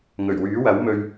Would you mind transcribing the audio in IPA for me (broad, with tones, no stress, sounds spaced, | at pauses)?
ŋ ɵ˨˩ ɥ w yː˨˥ w ɐ˨˥ w m ɵ˧ ɥ